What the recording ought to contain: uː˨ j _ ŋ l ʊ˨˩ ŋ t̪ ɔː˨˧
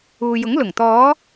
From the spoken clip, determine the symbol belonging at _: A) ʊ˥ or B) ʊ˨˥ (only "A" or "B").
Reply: B